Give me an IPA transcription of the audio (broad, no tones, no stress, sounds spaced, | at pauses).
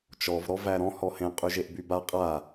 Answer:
t͡ʃ ɔ v ɾ ɔ v æ ɾ ɔ̃ h ɔ h ẽ qʼ y ʒ e ʔ b y b a qʼ a